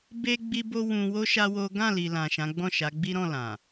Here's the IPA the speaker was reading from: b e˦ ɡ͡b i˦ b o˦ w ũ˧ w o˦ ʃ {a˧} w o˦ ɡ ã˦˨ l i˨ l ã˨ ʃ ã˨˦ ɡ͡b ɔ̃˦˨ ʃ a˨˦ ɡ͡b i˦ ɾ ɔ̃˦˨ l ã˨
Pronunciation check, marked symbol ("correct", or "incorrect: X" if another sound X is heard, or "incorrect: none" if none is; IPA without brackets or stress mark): incorrect: a˦